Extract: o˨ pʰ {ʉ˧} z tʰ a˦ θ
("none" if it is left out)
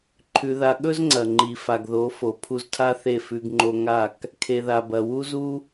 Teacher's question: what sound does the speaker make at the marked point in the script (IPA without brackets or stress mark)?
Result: u˧